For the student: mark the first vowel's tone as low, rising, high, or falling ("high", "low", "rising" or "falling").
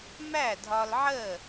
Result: falling